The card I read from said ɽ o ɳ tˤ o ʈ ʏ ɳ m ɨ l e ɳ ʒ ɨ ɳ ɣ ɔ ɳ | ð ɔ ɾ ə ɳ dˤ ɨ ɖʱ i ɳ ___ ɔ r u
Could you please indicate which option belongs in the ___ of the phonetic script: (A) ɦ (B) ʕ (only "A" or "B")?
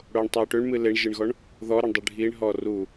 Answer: A